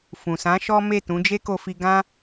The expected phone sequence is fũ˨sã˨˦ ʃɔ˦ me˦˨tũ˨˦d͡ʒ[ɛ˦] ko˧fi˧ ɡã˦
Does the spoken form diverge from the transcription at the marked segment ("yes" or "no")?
yes